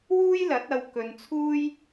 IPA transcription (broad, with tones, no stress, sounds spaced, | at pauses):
w uː˥ j l ɐ˨˥ t̚ ɐ˧ w k ɵ˧ n t͡sʰ uː˥ j